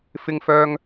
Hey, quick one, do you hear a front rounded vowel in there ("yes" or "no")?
yes